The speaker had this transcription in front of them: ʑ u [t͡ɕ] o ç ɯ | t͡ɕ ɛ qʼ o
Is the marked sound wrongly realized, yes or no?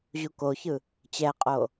yes